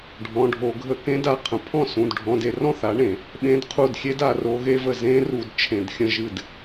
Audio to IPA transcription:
ɖʱ ɔ̃˩˧˩ ɖʱ o˧˩˧ ɡʱ ə˧˩˧ k ẽ˨˥ d a˩˧˩ qʰ ə̃˩˧˩ pʰ ɔ̃˥˩ s ũ˩˧˩ d ɖʱ ɔ̃˩˧˩ d e˧˩˧ r ɔ̃˥˩ θ a˨˥ ɳ ẽ˧˩˧ | ɓ ẽ˨˥ d qʰ u˧˩ d xʲ e˦˥ d a˧˩˧ r o˨˥ ɣ e˦˥ v ə˧˩ z ẽ˦˥ r u˧˩˧ d t͡ʃʰ ẽ˧˩˧ d xʲ ə̃˥˩ ʒ ɨ˥˩ d

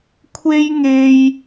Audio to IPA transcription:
kʷʰ e˥ j ŋ e˧ j

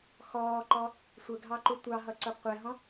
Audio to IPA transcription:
x ɔː ǃ ɔ | sʷ ə ɡʱ ɑ ǃ u tʷ ɑ ɦ ʌ ǀ ʊ qʷ ɛ ɦ ɔ̃

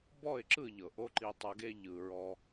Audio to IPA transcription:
b ɔ˦˨ ɪ̯ ǁ ɯ˦˨ ʎ ɤ˨ ʔ o˧ ǃ i˧ tˤ ɤ˧ ɡ e˦ ʎ ɯ˨ ɹ ɔ˧

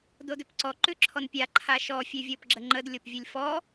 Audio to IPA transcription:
d o d ʏ p ǀ ɔ ǃ ʉ ǁʰ ɔ n pʲ a ǃʰ a ʃ ɔ fʲ ʉ vʲ ɤ p ɡ͡ǁ ə ŋ͡ǃ ə d lʲ o p vʲ ɨ lʲ f ɔ

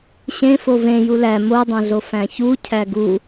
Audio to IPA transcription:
ɕ ẽ f o v ẽ j u l æ m o dˤ õ ɮ o f æ̃ ç u cʰ æ ɡ u

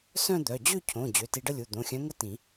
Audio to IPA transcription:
s œ̃˥˧ d̪ œ˩˧˩ d͡ʑ ø˥˧ cʰ õ˩˧˩ d͡ʑ ø˩˧˩ t i˧ ɖ ə˥˧ lʲ u˩˧˩ d̪ õ˩˧˩ xʲ œ̃˧˥ ŋ ə˥˧ t ĩ˨˩˦

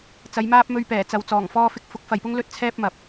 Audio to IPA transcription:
t͡s ɐ˨˧ j m aː˥ p̚ m ɵ˧ ɥ p ɛː˨˩ t͡s ɐ˨ w t͡s ɔː˨˩ ŋ f ɔː˧ f ɪ˧ k̚ f ʊ˨˥ k̚ f ɐ˨ j p ʊ˥ ŋ l ɵ˥ t̚ t͡sʰ ɛː˥ p̚ m ɐ˨ p̚

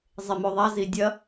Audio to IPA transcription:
zˤ e m o ðˤ a z i dʲ ɐ

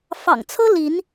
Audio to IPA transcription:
f ɑ̰˨˩ ŋ t͡sʰ ɤ˦ l i˨˦ n

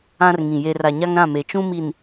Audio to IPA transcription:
ã˦ r ŋ ĩ˨ j e˨ r a˨ ɲ a˦ ŋ ɾ ã˦˨ m e˨ t͡ʃ ũ˦ m i˨ n

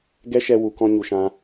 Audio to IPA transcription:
ɡ ɛ˦ ʃ ɛ˧ w u˨ k ɔ̃˧ ɲ u˧ ʃ ã˦

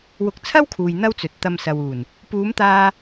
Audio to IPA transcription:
w ʊ˧ k̚ t͡sʰ ɐ˥ w kʰ uː˨ j n̪ ɐ˥ w t͡s ɵ˨ t̚ t̪ ɐ˧ m s ɐ˨ w uː˨˩ n | p uː˨˧ m t̪ aː˧

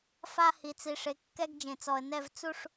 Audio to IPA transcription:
f a˦ h i˨ t͡s i˨ ʂ e˨ kː ɛ˦ ɡ d͡ʒ ẽ˨ t͡s ɔ˨ ə̯ n ɛ˦˨ v t͡s u˦˨ ʂ

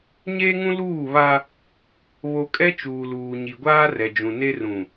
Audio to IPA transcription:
ɲ eː˦ ŋ ũ˦ l uː˦˨ β a˦ | β o˦ kʼ ɛ˦ t͡ʃ uː˨ l uː˨ ɲ i˨ ɡʷ aː˦ r ɛ˨ d͡ʒ ũ˨ n e˦ r ũ˨

